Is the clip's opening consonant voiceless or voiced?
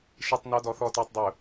voiceless